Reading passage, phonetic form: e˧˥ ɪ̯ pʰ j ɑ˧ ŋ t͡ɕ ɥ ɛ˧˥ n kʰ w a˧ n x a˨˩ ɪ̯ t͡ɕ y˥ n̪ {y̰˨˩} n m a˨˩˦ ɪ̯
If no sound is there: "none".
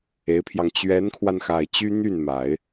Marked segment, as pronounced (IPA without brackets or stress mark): y˥˩